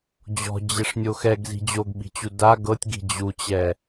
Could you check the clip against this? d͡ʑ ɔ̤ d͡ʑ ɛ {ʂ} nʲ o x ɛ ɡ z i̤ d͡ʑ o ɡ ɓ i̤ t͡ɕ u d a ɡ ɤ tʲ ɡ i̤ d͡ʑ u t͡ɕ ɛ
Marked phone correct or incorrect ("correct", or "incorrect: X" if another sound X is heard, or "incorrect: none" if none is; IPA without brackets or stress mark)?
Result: correct